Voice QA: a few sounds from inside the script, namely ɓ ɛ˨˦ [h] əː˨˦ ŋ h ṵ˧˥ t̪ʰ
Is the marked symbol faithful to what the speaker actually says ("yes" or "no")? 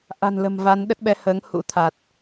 yes